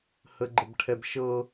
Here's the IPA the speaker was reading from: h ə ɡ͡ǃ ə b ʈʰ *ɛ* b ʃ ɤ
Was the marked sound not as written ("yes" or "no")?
no